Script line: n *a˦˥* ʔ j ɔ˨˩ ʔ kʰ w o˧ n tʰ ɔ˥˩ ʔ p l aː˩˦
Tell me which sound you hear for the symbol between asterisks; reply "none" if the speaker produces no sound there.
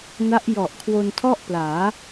a˦˥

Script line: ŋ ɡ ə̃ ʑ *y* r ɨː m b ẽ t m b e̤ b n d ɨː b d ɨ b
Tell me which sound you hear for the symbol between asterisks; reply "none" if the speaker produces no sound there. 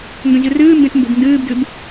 ɨ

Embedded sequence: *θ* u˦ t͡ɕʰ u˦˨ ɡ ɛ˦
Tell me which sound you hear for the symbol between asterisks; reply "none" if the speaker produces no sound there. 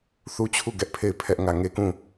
θ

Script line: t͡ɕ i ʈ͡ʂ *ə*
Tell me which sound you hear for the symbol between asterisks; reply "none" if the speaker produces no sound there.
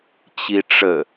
ə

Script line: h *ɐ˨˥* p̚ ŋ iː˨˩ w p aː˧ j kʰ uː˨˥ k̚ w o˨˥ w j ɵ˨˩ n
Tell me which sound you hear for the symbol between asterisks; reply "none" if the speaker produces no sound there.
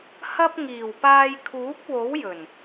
ɐ˥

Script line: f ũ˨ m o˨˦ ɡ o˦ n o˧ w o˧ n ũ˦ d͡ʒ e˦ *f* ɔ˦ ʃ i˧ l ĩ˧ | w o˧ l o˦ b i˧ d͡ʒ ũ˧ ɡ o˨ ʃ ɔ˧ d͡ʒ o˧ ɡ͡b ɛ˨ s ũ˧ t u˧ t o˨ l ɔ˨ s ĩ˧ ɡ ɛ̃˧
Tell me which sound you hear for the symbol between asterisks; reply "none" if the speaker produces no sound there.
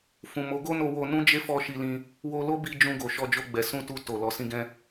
f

